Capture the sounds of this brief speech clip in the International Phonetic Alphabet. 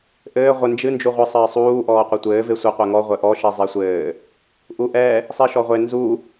ʔɘː ʁʷɘ nd͡ʒɨ nd͡ʒuʁʷɨ sˤɘːsˤuː ʔɔːqʷɘtʷɘː vesʷɘ qʷɛŋɔ ʁʷɘʔɔ ʃizˤesʷɘː | ʔuʔɛ | sˤiʃɔʁʷe nzu

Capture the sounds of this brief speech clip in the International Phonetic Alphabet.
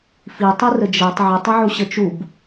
fitˤirə d͡ʒɛtˤ ʕətˤəʕuɕə t͡ʃub

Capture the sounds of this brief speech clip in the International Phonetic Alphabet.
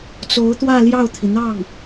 t͡so˧˥ʊ̯t̪wä˥˧ ljɑ˥˩ʊ̯t̪ʰi˩n̪ɑ˥˩ŋ

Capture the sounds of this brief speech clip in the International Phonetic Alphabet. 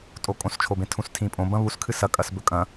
tʼokʼõst͡ʃʰobẽ tʰũstʰĩpʼõ bɐ̃βuskʰɨ sɐkʼɐs bɵkʼɐ̃

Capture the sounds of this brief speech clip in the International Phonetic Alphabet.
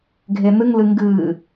ɡʱen̪ɨŋlɨ ŋɡɨ

